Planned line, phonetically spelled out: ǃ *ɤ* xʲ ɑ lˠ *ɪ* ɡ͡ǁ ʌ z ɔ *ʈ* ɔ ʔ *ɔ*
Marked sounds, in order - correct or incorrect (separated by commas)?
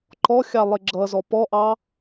incorrect, correct, incorrect, incorrect